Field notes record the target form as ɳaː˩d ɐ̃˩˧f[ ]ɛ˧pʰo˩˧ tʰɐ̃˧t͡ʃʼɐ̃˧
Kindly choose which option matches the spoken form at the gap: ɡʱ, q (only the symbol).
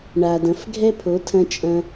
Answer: ɡʱ